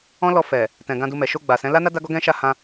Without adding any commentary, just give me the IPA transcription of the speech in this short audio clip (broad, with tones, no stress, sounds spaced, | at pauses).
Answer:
ɔ̃˦ l ɔ˧ f ɛ˨ | t ɛ̃˨ ɡ ã˧ d u˧ m ɛ˨ ʃ o˧ ɡ͡b a˨ s ɛ̃˨˦ l a˦ n a˦ d a˦ ɡ ɔ˦ ɡ ɛ̃˦ ʃ a˦˨ h ã˧